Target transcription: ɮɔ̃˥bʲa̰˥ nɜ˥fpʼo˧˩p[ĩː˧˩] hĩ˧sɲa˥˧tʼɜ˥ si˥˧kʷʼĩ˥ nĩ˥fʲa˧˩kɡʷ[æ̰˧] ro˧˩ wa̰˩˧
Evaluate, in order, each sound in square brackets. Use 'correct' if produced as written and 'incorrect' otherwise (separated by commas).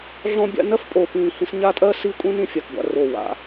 correct, incorrect